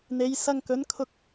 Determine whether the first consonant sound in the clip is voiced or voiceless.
voiced